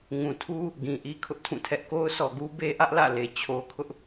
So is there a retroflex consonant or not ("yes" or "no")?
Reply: no